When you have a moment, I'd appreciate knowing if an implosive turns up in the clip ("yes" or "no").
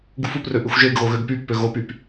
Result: no